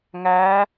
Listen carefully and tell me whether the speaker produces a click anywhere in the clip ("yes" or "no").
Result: no